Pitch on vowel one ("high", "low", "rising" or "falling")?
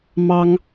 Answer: high